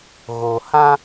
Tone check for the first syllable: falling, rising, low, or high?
low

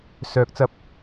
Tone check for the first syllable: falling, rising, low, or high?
rising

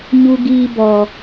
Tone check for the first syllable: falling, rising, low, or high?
high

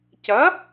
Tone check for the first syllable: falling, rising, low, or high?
rising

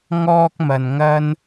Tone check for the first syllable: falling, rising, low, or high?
high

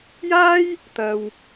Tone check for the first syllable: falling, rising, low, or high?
high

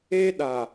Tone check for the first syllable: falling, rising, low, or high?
high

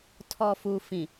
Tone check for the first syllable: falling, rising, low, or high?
low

